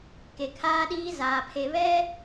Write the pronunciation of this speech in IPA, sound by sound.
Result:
k e˨ kʰ aː˦ ɗ iː˦ z aː˨ pʰ e˨ β ɛ˦

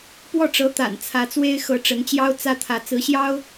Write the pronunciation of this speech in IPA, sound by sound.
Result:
p w ɔ˥˩ ʈ͡ʂ ɤ˧˥ t̪ a̰˨˩ n t͡sʰ ä˧˥ t͡s w e˥ ɪ̯ x ɤ˧˥ ʈ͡ʂ ə˧˥ n t͡ɕ j ɑ˥ ʊ̯ t͡s ä˥ t̪ʰ ä˧˥ t͡s ɹ̩˧˥ ɕ j ɑ˥ ʊ̯

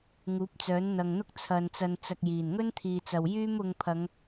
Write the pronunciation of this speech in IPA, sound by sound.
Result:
ŋ uː˨˥ p̚ t͡s œː˨˥ n n̪ ɐ˨ ŋ n̪ ʊ˥ k̚ t͡sʰ ɐ˧ n t͡s ɐ˧ n t͡s ɐ˧ k̚ j iː˨˩ n ŋ ɵ˥ n t̪ʰ iː˨ t͡s ɐ˨ w j yː˥ m ʊ˧ ŋ pʰ ɐ˨˧ ŋ

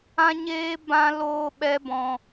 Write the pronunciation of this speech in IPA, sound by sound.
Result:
ã˦ ɲ eː˦ b ã˦ l oː˦ ɓ ɛ˦ b ɔ̃˧

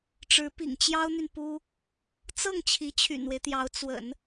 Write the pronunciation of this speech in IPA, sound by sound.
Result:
ʈ͡ʂ ɻ̩˧˥ p ḭ˨˩ ŋ t͡ɕ j ɑ˥ ʊ̯ n̪ y˨ n p u˥ | t͡s ɤ˥˩ ŋ t͡ɕʰ i˧˥ t͡ɕʰ y̰˨˩ n w e˦ ɪ̯ t̪ j ɑ˧˥ ʊ̯ t͡s w ə̰˨˩˦ n

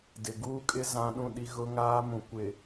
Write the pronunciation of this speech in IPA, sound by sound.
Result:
d ɪ˨ ɡ uː˦ kʼ ɪ˦ z ã˦ ɗ ũ˦˨ ɗ i˦ ɣ ʊ˦ ŋ aː˦ m ũ˨ kʷ ɪ˨

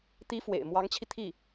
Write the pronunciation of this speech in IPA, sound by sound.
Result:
t̪ i˧˥ f w ḛ˨˩ ɪ̯ m w ɑ˧˥ ŋ t͡ɕʰ i˧ t̪ʰ i˥˩

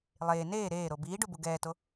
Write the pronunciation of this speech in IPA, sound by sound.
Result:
lˠ eː n eː ɾ eː ɾ o b iː ɖ u b u ɡ ɛː t o

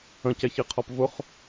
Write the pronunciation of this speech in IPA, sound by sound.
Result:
ə̃ c ɛ ç i qʰ ɔ p v ʊ χ

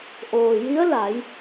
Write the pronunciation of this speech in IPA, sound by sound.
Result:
ʔ oː˩ j i˧˥ ə̯ l a˩˧ j

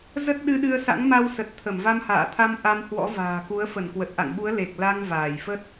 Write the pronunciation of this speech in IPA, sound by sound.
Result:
z ə˦˥ t̚ ɗ ɨ˧ ɗ ɨ˧ ə̯ s a̰˧˥ ŋ m a˧ w s ə˨˩ t̚ t̪ʰ ə˧˩ m v a˧ m h a̰ː˧˨ t̪ʰ a˧ m ʔ a˧ m h w ɔ̰˧˥ v a̤ː˨˩ k u˨˦ ə̯ f ə˧˩ n k w ə˨˩ t̚ ʔ a̰˧˨ ŋ ɓ u˨˦ ə̯ l e˨˩ k̚ l a˧ ŋ v aː˧˩ j f ə˦˥ t̚

